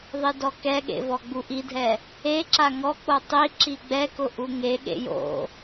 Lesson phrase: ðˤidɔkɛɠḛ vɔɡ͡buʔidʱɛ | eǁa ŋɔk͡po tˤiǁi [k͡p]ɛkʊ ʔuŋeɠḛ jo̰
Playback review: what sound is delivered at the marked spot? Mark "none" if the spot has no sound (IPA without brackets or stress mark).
ɡ͡b